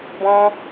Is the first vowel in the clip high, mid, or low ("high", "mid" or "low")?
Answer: mid